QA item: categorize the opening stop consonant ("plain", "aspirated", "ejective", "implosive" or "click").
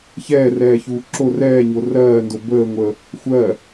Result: click